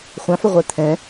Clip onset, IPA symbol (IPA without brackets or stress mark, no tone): χʷ